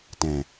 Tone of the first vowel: low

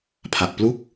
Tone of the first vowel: low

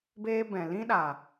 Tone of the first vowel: high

